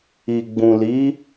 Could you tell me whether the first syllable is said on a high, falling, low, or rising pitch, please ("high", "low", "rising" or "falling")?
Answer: low